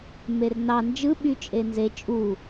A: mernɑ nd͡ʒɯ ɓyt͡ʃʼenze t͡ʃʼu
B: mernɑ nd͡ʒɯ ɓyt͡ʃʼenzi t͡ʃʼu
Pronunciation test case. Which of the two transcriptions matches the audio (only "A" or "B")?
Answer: A